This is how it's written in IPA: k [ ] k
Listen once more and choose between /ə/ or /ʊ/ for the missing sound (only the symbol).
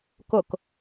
ʊ